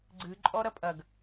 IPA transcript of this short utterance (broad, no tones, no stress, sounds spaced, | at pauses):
ɡ͡ǀ ɨ ǃʼ ɔ ɾ ɐ pʼ ɐ ɡ